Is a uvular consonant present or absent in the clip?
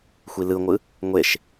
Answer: absent